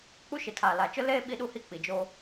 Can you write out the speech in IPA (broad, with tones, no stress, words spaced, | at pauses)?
k͡pu˦ʃɪ˨tʰaː˨ la˨t͡ʃʊ˦ leː˦ ɓi˦ɗu˦hi˦ k͡pi˨d͡ʒoː˦